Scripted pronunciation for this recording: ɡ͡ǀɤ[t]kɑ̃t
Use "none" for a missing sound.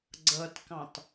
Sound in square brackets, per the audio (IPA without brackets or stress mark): t